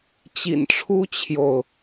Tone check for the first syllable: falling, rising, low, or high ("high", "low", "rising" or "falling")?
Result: low